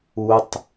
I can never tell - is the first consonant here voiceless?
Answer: yes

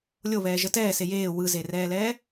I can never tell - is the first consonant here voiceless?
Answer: no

